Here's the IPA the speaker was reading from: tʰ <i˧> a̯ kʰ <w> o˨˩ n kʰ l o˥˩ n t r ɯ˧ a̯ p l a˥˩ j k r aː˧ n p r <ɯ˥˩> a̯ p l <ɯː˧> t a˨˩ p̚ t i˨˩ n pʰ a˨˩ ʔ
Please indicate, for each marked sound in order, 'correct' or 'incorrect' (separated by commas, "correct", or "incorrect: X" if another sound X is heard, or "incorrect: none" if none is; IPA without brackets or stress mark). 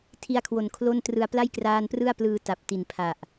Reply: correct, correct, correct, correct